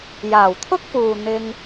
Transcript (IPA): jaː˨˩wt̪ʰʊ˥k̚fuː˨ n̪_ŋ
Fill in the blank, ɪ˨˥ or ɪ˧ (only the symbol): ɪ˧